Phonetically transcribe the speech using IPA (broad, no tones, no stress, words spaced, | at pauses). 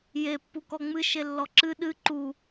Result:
je pːukɔŋ͡mɨ ʃelːɔǁɨ ɗɨ ǃu